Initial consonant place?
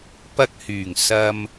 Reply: labial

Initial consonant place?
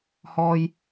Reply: glottal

